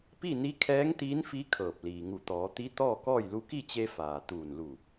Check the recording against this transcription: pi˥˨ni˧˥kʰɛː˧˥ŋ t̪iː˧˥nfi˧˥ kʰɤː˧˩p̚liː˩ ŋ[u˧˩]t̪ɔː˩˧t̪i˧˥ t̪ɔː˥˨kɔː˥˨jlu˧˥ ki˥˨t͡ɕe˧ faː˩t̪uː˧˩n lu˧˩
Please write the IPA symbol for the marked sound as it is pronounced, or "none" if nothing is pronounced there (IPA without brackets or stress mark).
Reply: u˧˩